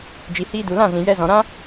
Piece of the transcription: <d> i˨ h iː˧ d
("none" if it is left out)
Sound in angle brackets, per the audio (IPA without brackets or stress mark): d͡ʒ